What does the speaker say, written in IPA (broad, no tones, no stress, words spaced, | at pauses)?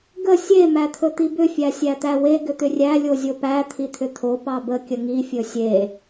ɡə sʲe mæt̪ʰɵt̪ibʏ fʲæsʲæt̪æwe ɡʏt̪ʏrʲæ lʲozʲopæ t̪ʰit̪ʰʏt̪ʰo pɑbə kʲəŋi fʲɵsʲe